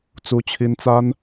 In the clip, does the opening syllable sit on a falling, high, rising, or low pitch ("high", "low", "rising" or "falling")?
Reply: high